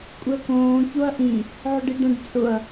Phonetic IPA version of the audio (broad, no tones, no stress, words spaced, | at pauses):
kʷʼɪɐ̯kõː çoɐ̯ʔĩ | ʕʊɖiɖɛ̃ɖ t͡sʼʊɐ̯